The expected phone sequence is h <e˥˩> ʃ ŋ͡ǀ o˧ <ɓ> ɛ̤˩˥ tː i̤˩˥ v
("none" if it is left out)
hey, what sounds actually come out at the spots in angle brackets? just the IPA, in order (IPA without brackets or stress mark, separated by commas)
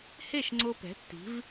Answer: e˥˩, p